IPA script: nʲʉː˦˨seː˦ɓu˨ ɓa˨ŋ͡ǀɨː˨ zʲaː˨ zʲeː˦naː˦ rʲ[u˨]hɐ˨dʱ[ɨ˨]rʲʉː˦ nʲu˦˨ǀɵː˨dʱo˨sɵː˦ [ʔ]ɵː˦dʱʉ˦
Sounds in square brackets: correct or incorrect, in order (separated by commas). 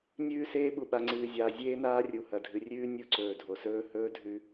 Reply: correct, correct, incorrect